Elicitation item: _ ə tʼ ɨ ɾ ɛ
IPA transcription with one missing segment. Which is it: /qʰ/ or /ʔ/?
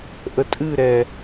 ʔ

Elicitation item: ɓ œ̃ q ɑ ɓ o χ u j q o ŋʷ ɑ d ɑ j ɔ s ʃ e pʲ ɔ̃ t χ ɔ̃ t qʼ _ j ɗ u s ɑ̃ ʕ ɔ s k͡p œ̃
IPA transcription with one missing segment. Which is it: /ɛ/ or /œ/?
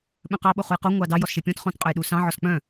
œ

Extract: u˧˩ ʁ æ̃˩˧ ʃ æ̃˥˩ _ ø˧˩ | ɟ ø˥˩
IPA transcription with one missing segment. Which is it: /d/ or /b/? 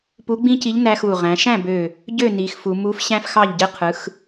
b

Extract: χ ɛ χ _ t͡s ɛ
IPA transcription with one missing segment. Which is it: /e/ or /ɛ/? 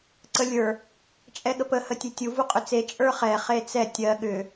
e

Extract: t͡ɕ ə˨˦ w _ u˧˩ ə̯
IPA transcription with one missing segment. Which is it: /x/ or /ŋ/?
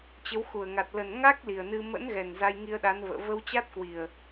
x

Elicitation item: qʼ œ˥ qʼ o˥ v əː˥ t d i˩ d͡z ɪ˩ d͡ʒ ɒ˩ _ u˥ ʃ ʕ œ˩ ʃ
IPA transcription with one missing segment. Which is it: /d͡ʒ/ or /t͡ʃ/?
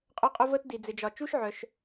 t͡ʃ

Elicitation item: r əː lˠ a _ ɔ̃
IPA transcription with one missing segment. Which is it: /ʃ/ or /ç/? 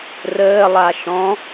ʃ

